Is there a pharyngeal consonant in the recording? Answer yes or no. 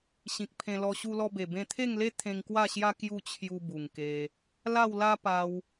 no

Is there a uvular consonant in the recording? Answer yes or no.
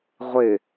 yes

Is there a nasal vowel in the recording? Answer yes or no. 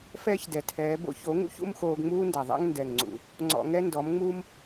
no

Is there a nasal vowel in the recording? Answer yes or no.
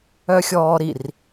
no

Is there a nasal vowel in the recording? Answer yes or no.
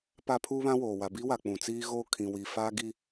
yes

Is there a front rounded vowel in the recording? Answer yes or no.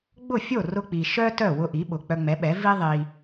yes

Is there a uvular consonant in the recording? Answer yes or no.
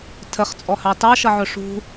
yes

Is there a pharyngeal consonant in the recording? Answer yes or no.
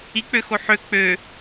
yes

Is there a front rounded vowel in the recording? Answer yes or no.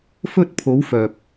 yes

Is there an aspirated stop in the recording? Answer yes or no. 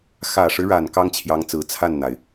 yes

